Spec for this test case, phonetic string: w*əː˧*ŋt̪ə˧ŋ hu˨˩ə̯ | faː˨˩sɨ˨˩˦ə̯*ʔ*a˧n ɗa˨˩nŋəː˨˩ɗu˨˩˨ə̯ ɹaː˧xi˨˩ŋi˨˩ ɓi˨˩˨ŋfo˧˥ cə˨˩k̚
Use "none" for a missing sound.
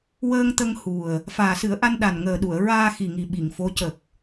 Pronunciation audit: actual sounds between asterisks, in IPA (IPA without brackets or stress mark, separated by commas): əː˧, ʔ